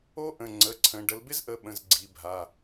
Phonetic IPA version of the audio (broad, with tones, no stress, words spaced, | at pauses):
o˥ʔə̃˩˧˩ ŋ͡ǀə˩˧˩ ǀʰə̃˩˧ ɖə˩˧lbɪ˥zʔə˩˧˩ ɓə̃˩˧˩z ɡ͡ǀi˩˧bʱa˩˧˩